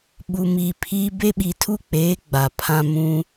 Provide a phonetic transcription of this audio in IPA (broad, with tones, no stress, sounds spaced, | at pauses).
ɓ u˨ m i˨ pʰ i˦ b e˦ ɓ i˨ tʰ u˦ k͡p eː˨˦ ɡ͡b a˨ pʰ ã˦ m ũ˦